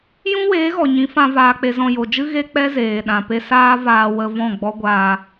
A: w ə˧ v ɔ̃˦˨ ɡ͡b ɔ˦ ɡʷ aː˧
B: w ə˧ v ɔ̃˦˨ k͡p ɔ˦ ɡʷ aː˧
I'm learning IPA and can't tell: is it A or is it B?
A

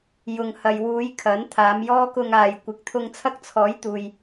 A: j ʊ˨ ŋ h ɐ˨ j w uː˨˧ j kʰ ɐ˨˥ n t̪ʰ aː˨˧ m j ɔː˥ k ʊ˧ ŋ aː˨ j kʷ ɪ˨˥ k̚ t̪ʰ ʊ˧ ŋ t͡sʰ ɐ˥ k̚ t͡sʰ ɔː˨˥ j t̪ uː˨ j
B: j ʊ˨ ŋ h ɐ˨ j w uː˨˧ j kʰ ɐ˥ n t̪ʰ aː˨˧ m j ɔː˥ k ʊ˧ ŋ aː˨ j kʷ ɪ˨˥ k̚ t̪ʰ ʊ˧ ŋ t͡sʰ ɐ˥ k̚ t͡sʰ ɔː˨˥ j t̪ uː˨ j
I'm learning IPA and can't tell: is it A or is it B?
A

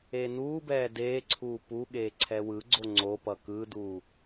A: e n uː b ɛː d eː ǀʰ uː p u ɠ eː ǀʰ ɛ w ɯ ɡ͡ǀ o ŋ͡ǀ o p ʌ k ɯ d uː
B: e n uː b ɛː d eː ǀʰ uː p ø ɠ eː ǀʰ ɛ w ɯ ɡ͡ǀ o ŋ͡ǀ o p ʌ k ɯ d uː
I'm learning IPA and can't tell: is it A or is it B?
A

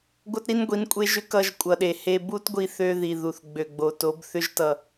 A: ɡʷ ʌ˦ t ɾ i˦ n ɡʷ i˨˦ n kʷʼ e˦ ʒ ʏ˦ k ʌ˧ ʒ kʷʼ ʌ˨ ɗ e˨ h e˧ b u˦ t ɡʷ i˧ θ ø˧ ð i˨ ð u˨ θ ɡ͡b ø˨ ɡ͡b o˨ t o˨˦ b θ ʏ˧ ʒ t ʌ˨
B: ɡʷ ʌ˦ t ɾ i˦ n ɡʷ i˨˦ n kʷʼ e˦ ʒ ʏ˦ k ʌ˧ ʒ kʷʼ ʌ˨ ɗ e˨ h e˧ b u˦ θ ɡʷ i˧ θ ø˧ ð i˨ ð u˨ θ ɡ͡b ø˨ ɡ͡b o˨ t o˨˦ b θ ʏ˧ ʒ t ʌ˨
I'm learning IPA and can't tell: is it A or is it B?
A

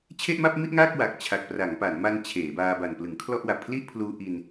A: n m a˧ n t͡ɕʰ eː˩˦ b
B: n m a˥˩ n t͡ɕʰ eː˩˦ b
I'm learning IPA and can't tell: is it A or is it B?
A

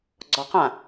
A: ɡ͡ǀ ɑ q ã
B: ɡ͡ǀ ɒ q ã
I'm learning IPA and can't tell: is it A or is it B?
B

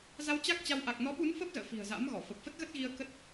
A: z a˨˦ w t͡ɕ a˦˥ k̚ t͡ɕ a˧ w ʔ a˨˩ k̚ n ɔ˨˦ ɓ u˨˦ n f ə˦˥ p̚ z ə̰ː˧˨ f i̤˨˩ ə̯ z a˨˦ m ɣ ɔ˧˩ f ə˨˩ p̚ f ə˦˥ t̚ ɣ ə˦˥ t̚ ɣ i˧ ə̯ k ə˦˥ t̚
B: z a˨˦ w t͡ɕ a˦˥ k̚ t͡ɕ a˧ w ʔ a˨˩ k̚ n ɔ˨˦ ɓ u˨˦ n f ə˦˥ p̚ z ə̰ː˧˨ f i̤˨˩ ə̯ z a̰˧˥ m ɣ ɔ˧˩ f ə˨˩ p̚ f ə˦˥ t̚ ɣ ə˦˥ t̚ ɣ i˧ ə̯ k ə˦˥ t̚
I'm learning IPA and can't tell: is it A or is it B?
B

